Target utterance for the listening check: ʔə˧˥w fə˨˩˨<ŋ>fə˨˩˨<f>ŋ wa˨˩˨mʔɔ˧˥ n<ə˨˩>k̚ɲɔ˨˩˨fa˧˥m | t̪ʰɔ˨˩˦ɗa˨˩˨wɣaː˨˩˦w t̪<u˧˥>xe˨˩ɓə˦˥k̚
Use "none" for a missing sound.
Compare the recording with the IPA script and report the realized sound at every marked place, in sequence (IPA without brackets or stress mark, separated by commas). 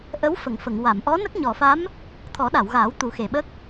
ŋ, none, ə˦˥, u˨˩˦